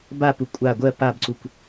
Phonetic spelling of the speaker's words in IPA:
bapu kʷʼa ɡʷɜ pabǀukʷ

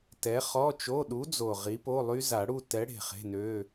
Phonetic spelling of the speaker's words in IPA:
tɛ˨˥χɔ˧˥˧t͡ʃo˧˥˧ ɗu˨˥d͡zo˨˩ ʁi˨˥po˧˥˧lˠy˦˥ za˨˩˦ɽu˥˧ tɛ˨˥ɽe̤˨˩ χe̤˧˥˧nø˧˥˧

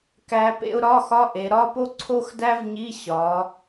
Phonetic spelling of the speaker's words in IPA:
kæ˧˥pḛ˥ʊ̯ ɾɒ˧˥˧xɒ˧˥˧ʔe˩˧ ɾɒ˧˥˧po˥ ǀʰo˥xdæ˥vɲi˧˥˧ ɕɒ˩˧

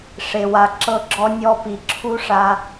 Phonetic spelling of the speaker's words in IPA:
ʂe˨wa˨ ǁɤ˧ɡ͡ǁɔ˧ nʲɔ˧pi˨ ǁʰu˦ʂa˧

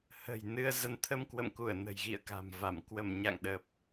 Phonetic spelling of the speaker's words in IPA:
hə̤˨˩j nɨ˧ə̯zə˧n t̪ʰə˧mkwə̰˧˨mku˧˩ə̯ nə̤˨˩jɣḭ˧˨ə̯ka̤˨˩mva˧˩m kwə˧˩mɲa̰˧˨ŋ ɗə˨˩p̚

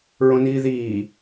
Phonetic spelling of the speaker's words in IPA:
ɹõniːðiː

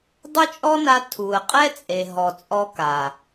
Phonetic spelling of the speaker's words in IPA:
dˤʊ˦t͡ʃʼɔ˦na˧ tʰu˨ə̯qʼɛ˦t͡sʼe˨ ɦɔ˨t͡sʼɔ˧ ka˨

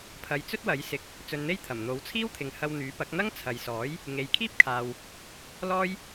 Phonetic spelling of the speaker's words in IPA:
pʰɐ˨jt͡sɵ˥t̚wɐ˨˥jsɪ˨˥k̚ | t͡sɵ˧nn̪e˥jt̪ʰɐ˨˩m n̪o˨˥wt͡sʰiː˥wt̪ʰɪ˨˧ŋhɐ˧w n̪yː˨˥pɐ˨˥k̚n̪ɐ˥ŋ t͡sʰɐ˨jsɔː˨˥j | ŋe˨jkʰiː˥p̚kʰaː˨w | lɔː˥j

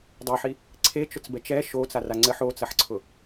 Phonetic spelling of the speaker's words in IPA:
dˤɘħi | ǀʰet͡ʃʊt͡sbɛt͡ʃ ɛ ʃot͡sara ŋ͡ǀɘħ ot͡sɐħǀʰʊ

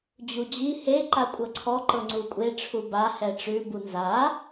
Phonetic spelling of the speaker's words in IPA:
d͡ʑud͡ʑi he ǃakʷʼɤǀʰɔ ǃɤŋ͡ǀukʷʼe ʈ͡ʂʰuba hɛʈ͡ʂʉ bunza

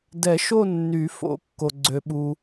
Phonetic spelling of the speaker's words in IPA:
dɛ˨˩˦ʃo˦˨ nːy˨˩˦fo̰˨˩˦kːo˩ ɡ͡ǀø˩ɓu˩

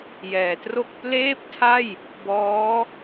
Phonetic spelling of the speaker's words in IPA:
jɛː˩˦tro˥˩k̚ pleː˥˩p̚tʰa˥˩j | bɔː˦˥

